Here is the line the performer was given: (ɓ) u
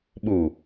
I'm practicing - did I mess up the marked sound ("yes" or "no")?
no